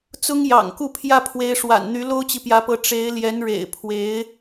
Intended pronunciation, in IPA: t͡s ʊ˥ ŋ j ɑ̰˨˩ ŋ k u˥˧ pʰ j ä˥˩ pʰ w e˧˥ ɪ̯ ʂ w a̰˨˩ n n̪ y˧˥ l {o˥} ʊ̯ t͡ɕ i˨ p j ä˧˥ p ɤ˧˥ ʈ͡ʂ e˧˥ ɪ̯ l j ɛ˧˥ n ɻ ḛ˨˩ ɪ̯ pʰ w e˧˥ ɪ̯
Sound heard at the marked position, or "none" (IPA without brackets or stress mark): o˥